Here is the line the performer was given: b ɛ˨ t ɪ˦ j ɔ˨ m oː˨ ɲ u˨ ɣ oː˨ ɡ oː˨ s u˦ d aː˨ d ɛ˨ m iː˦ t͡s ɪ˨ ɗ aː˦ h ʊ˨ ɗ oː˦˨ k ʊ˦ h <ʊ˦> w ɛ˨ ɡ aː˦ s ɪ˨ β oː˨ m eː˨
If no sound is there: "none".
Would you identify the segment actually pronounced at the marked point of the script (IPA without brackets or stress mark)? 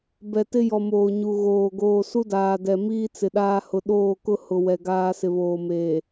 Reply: ʊ˨